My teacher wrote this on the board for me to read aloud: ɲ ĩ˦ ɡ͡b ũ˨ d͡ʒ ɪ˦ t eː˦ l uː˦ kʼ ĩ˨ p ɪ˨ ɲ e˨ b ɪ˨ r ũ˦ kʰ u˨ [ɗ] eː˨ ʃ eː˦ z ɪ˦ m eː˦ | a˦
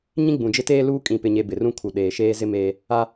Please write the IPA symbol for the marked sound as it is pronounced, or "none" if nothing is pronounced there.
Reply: ɗ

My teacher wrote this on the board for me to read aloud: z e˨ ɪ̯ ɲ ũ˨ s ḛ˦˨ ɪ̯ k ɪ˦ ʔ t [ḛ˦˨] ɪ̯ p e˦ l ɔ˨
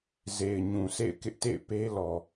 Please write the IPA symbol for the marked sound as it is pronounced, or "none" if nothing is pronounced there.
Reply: ḛ˦˨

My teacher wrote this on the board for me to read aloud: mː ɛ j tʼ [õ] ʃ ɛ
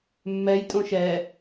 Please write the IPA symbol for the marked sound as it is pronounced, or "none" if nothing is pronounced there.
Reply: õ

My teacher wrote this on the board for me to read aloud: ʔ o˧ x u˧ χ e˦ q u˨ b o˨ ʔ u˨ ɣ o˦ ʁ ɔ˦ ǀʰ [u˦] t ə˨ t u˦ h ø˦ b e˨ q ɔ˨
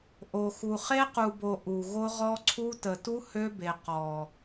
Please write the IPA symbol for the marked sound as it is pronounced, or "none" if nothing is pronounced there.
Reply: u˦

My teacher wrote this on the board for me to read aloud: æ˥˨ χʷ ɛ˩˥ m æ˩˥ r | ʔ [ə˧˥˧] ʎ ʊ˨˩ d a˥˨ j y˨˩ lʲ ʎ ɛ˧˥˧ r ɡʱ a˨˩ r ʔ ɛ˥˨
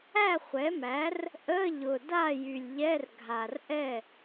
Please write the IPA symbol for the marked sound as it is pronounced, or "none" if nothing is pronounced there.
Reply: ə˧˥˧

